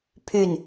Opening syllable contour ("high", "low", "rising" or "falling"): falling